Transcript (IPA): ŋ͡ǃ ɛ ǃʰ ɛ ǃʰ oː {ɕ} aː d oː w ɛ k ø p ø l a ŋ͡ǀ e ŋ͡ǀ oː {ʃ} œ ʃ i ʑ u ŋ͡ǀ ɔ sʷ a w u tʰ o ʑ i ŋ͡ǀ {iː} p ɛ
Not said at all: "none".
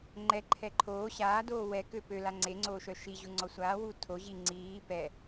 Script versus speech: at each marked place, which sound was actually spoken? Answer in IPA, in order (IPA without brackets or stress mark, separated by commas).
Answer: ɕ, ʃ, iː